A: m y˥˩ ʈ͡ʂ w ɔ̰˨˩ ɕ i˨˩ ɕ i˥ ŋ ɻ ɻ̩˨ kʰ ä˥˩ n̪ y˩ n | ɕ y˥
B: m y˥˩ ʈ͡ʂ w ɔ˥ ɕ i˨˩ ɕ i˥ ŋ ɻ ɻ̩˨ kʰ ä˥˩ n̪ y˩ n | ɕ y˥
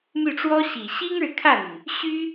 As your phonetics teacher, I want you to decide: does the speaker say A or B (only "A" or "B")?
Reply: B